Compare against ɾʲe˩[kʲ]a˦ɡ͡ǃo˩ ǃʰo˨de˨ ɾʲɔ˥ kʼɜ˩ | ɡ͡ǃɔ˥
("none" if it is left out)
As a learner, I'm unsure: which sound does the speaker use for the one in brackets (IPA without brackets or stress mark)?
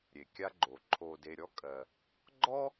kʲ